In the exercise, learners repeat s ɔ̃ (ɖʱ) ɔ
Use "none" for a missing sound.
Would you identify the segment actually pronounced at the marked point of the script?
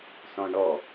ɳ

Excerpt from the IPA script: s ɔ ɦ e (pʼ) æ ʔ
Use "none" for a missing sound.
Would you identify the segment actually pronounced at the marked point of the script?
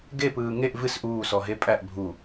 pʼ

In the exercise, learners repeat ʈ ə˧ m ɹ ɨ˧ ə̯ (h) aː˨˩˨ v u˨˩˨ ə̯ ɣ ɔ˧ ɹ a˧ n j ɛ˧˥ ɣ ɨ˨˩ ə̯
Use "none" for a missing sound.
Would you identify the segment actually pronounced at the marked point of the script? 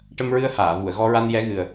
h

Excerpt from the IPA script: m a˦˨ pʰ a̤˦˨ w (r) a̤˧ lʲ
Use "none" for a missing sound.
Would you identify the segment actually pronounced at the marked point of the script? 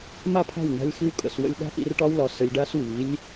n̪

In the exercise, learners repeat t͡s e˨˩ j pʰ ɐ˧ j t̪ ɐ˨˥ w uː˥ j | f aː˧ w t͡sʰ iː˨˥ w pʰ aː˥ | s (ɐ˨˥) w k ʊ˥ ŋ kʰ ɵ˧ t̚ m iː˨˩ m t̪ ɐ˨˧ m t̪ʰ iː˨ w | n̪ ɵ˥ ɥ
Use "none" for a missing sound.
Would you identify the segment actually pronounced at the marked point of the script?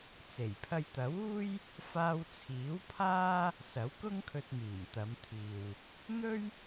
ɐ˨˥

